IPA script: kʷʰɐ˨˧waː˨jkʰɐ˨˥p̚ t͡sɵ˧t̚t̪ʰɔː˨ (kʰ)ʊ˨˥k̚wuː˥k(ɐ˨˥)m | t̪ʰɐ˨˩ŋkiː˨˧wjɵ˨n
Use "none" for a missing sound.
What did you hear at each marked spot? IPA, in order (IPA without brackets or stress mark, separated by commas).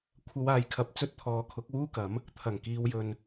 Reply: kʰ, ɐ˨˥